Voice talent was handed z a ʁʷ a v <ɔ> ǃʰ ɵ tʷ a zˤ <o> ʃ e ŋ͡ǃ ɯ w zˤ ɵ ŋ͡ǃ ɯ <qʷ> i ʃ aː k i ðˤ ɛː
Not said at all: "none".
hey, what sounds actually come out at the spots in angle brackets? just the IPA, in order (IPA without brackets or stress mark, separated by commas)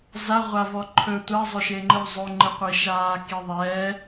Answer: ɔ, ɵ, qʷ